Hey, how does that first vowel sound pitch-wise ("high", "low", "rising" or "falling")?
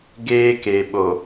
high